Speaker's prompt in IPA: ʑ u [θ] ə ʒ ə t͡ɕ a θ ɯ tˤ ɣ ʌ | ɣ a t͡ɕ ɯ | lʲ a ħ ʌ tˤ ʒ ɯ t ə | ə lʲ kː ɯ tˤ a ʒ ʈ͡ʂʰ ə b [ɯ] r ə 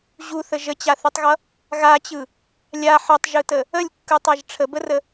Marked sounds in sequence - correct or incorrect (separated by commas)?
correct, incorrect